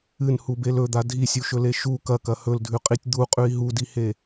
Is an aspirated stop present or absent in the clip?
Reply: absent